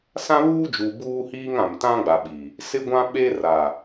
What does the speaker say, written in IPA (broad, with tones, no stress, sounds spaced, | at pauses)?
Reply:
s ã˦ β uː˦ d͡ʒ uː˨ b uː˦ h iː˦ ŋ ã˨ m t ã˦ ɡ͡b a˨ ɓ i˨ | s ɪ˦ ɡʷ ã˦ ɓ e˦ r a˨